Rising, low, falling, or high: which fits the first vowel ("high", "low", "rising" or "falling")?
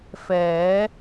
rising